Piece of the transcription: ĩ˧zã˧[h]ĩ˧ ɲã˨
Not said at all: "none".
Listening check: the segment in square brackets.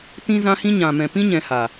h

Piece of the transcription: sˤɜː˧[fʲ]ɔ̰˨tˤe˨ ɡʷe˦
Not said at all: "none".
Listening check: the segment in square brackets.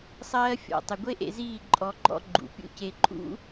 fʲ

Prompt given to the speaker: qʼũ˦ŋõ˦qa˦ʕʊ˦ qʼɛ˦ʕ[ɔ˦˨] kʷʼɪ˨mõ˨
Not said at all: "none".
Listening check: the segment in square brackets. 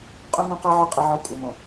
ɔ˦˨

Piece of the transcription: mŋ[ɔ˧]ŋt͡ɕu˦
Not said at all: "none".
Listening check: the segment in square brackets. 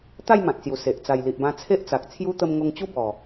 o˧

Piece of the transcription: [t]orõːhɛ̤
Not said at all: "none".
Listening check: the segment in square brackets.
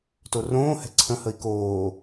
t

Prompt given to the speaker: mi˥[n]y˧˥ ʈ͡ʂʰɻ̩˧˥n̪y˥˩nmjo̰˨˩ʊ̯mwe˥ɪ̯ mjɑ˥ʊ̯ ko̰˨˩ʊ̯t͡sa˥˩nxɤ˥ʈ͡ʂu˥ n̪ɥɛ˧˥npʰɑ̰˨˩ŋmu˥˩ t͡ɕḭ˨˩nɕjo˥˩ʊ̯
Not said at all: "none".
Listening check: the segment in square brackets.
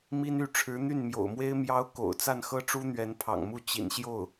n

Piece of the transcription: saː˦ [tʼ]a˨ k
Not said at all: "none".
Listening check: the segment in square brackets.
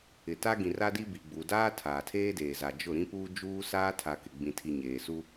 tʰ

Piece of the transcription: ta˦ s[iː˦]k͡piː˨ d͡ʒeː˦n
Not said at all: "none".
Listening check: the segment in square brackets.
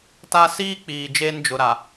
iː˦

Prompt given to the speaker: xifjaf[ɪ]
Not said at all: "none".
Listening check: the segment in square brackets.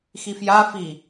i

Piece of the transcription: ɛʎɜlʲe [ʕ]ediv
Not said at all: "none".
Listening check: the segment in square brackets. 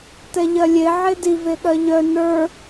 ʕ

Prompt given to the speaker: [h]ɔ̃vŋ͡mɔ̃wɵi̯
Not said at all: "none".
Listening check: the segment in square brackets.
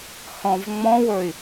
h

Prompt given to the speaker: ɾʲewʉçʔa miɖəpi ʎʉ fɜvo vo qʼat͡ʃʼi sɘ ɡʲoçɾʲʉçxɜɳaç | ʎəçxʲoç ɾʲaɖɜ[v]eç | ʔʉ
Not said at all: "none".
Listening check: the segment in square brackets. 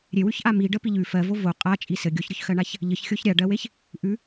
w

